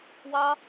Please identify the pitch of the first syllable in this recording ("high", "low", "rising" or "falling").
high